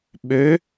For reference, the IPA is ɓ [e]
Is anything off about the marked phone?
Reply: yes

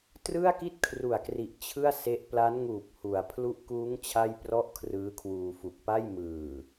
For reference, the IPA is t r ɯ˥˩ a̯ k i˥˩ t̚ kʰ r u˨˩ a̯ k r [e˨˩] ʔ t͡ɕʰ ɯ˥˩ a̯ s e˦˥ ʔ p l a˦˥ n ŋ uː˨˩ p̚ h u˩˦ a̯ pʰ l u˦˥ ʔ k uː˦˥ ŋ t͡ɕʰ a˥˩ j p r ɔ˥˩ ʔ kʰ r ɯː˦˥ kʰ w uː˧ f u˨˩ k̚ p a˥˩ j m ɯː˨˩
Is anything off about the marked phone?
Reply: yes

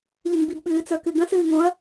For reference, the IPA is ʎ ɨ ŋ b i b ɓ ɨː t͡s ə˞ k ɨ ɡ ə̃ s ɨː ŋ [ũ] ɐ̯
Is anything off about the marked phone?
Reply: yes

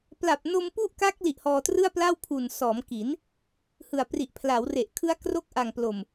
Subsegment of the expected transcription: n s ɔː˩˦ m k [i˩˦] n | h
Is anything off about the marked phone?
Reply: no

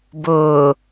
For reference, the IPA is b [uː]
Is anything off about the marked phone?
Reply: yes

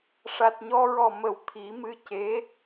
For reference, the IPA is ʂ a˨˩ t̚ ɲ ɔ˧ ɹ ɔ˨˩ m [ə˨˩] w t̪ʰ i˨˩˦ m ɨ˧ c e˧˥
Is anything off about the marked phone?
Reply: no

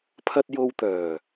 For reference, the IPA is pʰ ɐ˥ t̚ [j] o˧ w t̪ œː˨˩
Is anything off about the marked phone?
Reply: no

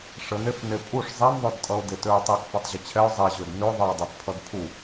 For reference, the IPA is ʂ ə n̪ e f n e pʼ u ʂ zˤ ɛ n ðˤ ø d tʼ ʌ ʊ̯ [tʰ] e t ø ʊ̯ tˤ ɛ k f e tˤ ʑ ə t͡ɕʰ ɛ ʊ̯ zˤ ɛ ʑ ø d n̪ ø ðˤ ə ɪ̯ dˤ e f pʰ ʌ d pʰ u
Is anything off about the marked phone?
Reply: yes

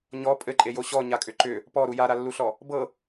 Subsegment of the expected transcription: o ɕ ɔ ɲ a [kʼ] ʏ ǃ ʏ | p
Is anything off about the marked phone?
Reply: no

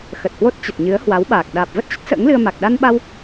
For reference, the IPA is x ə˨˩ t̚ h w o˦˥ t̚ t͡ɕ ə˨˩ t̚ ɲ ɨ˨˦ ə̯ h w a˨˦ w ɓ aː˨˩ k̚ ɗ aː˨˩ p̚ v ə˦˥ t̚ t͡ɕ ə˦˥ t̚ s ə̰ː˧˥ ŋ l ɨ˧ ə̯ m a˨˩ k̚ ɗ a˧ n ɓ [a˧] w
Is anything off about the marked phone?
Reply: no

